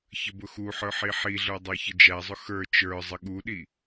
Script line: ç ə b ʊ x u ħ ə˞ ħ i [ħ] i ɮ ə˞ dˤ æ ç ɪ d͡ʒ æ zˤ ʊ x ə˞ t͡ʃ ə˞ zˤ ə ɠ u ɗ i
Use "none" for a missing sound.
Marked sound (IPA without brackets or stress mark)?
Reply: ħ